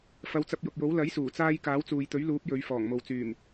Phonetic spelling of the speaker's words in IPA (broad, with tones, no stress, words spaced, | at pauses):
fɐ˨˧wt͡sɐ˧p̚jʊ˨k̚jo˨˥w lɐ˨˥jsuː˨˩t͡saː˧j kaː˨˥wt͡suː˨jt̪ɵ˨˥ɥluː˨˥p̚ jɵ˨˧ɥ fɔː˨˩ŋmo˨wt͡syː˨˩m